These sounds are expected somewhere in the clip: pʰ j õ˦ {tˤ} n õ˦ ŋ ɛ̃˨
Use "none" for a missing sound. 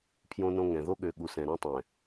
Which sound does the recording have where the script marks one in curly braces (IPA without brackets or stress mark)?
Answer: none